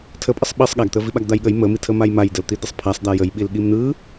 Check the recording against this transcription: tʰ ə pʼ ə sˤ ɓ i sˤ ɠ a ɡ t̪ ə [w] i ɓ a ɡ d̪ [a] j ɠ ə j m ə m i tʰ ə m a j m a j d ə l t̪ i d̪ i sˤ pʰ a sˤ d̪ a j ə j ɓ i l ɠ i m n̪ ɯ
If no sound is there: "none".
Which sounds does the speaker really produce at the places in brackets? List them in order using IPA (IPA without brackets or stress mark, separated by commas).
v, a